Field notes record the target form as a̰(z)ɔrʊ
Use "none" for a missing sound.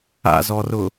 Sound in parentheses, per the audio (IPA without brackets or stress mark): z